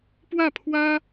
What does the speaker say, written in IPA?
p w ä˥˩ pʰ w ä˥

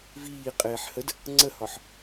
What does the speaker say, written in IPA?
v iː qʼ eː ħ h ə d | ŋ͡ǀ ə h ɒ ħ

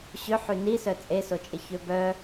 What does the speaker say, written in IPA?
ɕ ʏ ħ y n i s œ t͡sʼ e s o t͡ʃʼ ɪ ç ø b œ

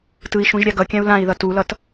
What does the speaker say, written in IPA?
t ɯ i̯ ʃ ũ ʒ ɾʲ a ɡ ʌ kʲ ã u̯ l ã i̯ ð ʌ t u l ʌ t

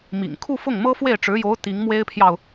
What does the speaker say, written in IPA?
m ḭ˨˩ ŋ kʰ u˥˧ f ʊ˥˩ ŋ m ɤ˥ f w e˥˩ ɪ̯ ʈ͡ʂ ɻ̩˧˥ j o˧˥ ʊ̯ t̪ i˧˥ ŋ m w e˥ ɪ̯ pʰ j ɑ˨ ʊ̯

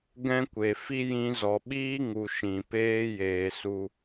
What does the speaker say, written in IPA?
ɡ ɛ̃˦ kʷ e˨ f i˦ j ĩ˧ z ɔ˨ ɓ iː˦ ŋ u˨ ʃ ĩ˨ p eː˦ j eː˨ s u˧

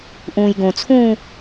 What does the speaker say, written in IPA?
ʔ ũː j ɡ õ t͡sʰ ũː

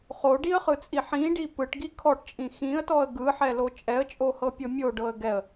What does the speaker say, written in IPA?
χ o ɖ i ə̯ χ ɯ t͡sʼ i ħ ĩ ɖ i p ɯ ʈ ɡ i kʰ ɔ ʈ t͡ʃʼ ĩ x ĩ ə̯ t ɔ ə̯ ɡ ɯ ħ ɛ l o t͡ʃʼ ɛ ə̯ t͡ʃʼ o h ɤ pʲ ɤ mʲ o ɖ ɤ ə̯ ɡ ɛ ə̯

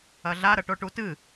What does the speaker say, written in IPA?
ɐ ɮ a ɾ ɐ ʈ o ʈ u t ɨ

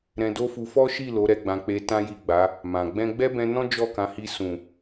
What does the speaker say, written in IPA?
ɾ ɛ̃˧ d o˦ f u˧ f ɔ˦ ʃ i˦˨ l o˨˦ ɾ ɛ˧ ɡ͡b ã˧ k͡p e˧ t ã˦ j i˦˨ ɡ͡b a˨˦ | m ã˨ ɡ͡b ɛ̃˧ ɡ͡b ɛ˦ b ɛ̃˧ n ɔ̃˦ d͡ʒ ɔ˦˨ k ã˨˦ h i˧ s ũ˨

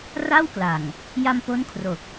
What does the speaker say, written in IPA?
r a˥˩ w k l a˨˩ ŋ | j a˧ m p o˦˥ n kʰ r o˨˩ k̚

